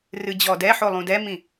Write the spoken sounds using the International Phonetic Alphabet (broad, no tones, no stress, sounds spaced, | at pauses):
r ɨ d͡ʑ ɔ d ɛ ħ o lˠ ũ d ɛ m ĩ